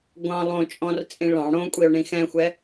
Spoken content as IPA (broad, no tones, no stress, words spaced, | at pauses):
ɡʷɑ̃ lˠõt͡ʃʼɔ̃rt͡sʼĩ ɭɑ̃ ɽõkʷʼio̯ɳĩ xɛ̃xʷɛ